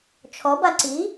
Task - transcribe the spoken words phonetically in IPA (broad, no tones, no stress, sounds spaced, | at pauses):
t͡ʃʰ ɔ b a ǀ i